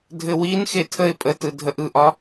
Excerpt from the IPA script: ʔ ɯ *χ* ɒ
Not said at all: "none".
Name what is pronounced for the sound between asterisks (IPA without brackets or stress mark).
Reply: ʔ